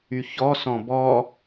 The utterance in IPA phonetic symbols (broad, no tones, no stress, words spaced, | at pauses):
yçɔsɔ̃ bɔ